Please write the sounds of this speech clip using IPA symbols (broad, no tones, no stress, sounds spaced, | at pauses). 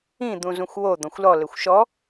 ĩ d̪ ũ z ũ xʷ w o d̪ ɔ̃ xʷ l ɔ l ɘ xʷ ʃ ɔ